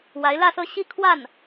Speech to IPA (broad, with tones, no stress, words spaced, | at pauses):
wa˧˥ɪ̯lä˥˧sɤ˥˧ ɕi˥˧kʰwa˥˩n